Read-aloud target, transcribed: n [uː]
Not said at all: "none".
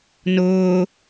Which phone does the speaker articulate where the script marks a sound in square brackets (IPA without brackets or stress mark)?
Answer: ʊː